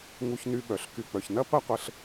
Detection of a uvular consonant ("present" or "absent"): present